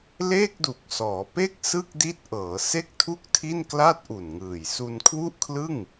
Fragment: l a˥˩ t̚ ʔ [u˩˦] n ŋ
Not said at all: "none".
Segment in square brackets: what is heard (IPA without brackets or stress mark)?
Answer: u˨˩